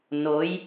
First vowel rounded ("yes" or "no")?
yes